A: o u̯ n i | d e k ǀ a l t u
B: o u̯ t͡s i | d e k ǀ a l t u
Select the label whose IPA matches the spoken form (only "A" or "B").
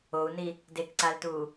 A